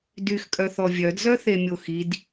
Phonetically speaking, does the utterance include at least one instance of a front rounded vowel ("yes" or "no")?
yes